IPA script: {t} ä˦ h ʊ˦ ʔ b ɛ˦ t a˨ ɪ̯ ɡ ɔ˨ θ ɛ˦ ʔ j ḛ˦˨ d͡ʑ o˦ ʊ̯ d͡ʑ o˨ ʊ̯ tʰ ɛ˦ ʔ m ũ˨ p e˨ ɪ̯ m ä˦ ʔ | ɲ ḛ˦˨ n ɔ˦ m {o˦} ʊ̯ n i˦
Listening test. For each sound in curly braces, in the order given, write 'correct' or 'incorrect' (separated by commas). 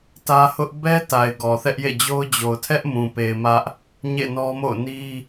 correct, incorrect